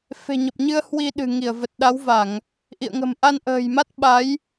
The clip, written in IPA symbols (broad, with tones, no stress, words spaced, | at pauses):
fe̤˨˩ɲə˨˩p̚ɲɨ˧ə̯ hwi˧ɗɨ̤˨˩ŋi˧˩ə̯ və˨˩t̚ɗa˨˦wva˧˩˨ŋ | ʔḭ˧˨ə̯ŋə̤˨˩mʔa˧n ʔə̤ː˨˩jma˦˥t̚ ɓa˨˦j